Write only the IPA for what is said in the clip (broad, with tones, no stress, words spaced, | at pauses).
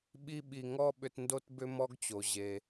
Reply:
ɓi˦ɓi˨ŋɔ˥ ɓʏ˦tndo˥t bʏ˦mɔ˦ɡt͡ɕo˩ ʑe˨